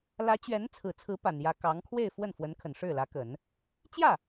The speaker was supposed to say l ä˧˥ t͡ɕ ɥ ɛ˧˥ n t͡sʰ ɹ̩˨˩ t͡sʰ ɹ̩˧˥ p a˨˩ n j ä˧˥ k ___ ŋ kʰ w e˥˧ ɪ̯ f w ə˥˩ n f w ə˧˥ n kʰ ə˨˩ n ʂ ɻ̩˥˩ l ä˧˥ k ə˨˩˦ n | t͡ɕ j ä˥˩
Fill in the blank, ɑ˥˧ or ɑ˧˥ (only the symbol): ɑ˧˥